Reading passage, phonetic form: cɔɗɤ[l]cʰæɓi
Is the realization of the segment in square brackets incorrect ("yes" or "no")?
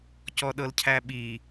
no